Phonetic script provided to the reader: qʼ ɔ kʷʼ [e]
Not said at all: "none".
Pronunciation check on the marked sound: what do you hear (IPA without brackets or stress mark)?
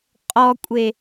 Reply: e